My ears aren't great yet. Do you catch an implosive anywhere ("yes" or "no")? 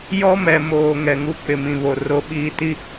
yes